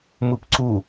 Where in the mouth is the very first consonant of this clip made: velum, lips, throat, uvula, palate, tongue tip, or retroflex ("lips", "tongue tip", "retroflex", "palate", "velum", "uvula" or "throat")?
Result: lips